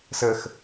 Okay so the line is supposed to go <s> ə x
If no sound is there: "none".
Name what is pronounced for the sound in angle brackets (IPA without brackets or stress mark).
s